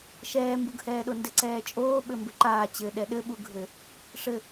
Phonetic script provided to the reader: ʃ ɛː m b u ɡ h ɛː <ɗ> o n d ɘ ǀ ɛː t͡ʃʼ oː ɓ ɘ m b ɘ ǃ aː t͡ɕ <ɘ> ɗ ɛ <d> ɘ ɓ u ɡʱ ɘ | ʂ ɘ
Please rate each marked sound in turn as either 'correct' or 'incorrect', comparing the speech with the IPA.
correct, correct, incorrect

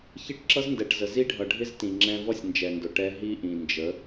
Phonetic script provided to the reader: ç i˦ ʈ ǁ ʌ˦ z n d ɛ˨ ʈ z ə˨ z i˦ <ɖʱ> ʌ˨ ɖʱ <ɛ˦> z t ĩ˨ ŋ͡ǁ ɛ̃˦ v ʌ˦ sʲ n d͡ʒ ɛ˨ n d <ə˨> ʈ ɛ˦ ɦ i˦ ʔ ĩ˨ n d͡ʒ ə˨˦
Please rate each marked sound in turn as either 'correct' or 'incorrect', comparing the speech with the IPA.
correct, incorrect, incorrect

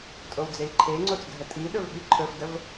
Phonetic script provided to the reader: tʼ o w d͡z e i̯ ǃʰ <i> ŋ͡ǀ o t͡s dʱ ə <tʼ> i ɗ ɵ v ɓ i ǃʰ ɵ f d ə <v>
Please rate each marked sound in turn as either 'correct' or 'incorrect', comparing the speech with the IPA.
incorrect, correct, correct

